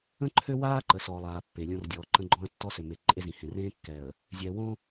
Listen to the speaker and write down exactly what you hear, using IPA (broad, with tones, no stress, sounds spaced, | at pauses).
ə̃˦ ǃʰ ø˦ w aː˦ ǃ ə˨ s ɔː˨ lˠ aː˨ pː e˨ lʲ õ˦ r dʲ ɔː˨ ǃ ə̃˦ ɡ͡ǃ ɔ̃˦ ə̯ tː ɔ˦ s ø˨ m e˨ ǃʼ e˦ z ĩ˨ h ẽ˨ r ẽː˦ kː ɛ˨ ə̯ | zʲ ɛ˨ w õ˦